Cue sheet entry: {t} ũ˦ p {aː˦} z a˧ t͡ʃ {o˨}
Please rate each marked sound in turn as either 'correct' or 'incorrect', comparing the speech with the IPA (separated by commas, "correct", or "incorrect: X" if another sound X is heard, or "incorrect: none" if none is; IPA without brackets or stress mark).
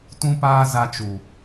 correct, correct, incorrect: u˨